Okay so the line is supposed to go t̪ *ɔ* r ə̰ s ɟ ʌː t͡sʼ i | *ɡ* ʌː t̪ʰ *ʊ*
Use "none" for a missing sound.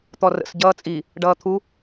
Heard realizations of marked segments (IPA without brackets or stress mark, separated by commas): ɔ, ɖ, u